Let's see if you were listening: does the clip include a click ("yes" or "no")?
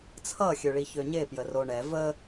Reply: no